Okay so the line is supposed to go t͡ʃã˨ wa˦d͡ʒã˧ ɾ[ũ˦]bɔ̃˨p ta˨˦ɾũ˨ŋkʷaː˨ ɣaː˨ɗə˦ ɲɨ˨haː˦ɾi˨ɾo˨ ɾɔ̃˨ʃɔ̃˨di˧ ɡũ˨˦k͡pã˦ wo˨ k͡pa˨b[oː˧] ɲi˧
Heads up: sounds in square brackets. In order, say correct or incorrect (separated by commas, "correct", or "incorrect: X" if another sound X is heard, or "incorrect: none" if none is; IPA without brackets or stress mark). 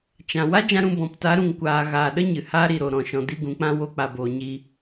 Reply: incorrect: ũ˦˨, incorrect: oː˨